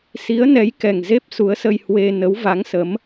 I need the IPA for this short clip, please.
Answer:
si˨˦ə̯nɛ˨˦jkɛ˨˩ŋ ze˦˥p̚su˨˦ə̯sə˧j hwe˧ nə˨˦wva˨˦ŋsə˨˦m

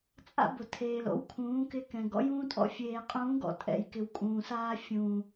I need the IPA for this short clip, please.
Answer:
t͡sʼa̰˦bʊ˨tʰeː˨l o̰˨˦wkʰũː˨˦kɪ˧ kɛ̃˨ ɡɔ̰˦jũː˦tʼɔ̰˦ fʲeː˨qʼũː˨˦ɡɔ̰˨ tʼɛ̰˨jkɪ˨w kʼũː˨saː˦ fʲũː˨

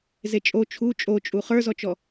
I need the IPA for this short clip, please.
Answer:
zet͡ʃʼo t͡ʃʰu t͡ʃʼot͡ʃʼu χə˞zɔt͡ʃɔ

